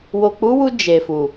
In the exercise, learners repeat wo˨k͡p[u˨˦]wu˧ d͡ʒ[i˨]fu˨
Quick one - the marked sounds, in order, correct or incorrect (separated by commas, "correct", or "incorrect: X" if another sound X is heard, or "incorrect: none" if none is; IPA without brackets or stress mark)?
correct, incorrect: e˨